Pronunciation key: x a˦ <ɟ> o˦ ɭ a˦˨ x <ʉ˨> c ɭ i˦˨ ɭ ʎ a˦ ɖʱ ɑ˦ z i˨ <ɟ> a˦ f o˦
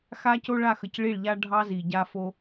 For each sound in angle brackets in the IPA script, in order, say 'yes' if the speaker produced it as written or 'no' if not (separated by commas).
no, no, yes